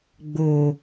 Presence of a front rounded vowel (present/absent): absent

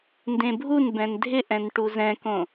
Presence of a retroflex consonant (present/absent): present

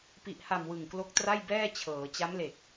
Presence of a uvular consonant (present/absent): absent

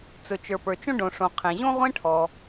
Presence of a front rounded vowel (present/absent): absent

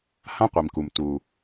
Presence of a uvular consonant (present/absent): present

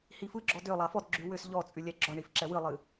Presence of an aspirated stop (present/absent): absent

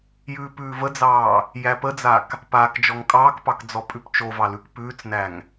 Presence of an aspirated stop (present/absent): absent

